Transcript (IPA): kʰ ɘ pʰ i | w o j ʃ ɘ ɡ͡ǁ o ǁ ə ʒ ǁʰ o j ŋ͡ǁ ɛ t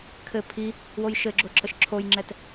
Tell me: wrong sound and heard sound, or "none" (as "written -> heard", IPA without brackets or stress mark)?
ʒ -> ʃ